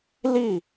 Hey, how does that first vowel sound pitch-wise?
falling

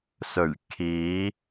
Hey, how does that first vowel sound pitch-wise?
low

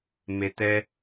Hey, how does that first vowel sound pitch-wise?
low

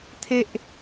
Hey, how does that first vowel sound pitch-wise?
high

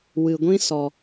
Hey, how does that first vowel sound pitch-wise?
low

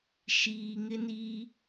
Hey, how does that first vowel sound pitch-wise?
low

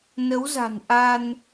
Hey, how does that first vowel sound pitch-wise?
rising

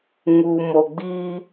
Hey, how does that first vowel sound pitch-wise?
low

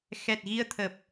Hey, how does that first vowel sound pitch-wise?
low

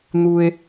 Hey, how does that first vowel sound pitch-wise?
high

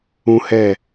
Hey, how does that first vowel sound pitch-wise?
high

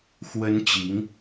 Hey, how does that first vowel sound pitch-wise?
high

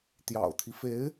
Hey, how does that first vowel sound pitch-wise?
low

